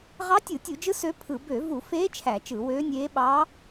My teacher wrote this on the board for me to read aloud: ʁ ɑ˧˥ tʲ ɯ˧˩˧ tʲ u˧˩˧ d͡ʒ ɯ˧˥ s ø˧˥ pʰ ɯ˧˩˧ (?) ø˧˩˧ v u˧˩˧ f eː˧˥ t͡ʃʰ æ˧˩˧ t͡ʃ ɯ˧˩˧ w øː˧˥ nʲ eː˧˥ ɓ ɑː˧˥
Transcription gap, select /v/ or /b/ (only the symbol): b